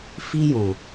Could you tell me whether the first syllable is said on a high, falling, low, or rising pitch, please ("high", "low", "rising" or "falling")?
high